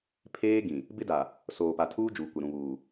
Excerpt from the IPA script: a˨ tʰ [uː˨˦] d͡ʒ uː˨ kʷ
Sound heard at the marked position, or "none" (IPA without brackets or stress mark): uː˦